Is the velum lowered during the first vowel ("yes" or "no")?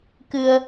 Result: no